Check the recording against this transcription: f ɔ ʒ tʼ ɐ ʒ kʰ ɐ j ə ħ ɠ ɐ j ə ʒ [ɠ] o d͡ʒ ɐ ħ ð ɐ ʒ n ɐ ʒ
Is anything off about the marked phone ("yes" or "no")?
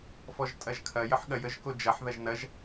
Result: yes